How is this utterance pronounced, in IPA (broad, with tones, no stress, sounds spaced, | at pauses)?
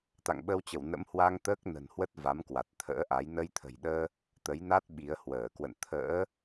t̪ a̰˧˨ ŋ ɓ ə˧ w t͡ɕ ə˧˩ w n ə̰˧˥ m h w a˧ ŋ t̪ əː˦˥ k̚ n ə̤˨˩ n h w ə˦˥ t̚ v a˨˦ m k w a˨˩ t̚ t̪ʰ ə̰ː˧˥ ʔ a˨˦ j n ə˧ j t̪ʰ ə̤˨˩ j ɗ əː˧ | t̪ ə˨˦ j n a˦˥ t̚ ɓ i˨˦ ə̯ h w əː˧˩ k w ə̰˧˨ n t̪ʰ ə̰ː˧˥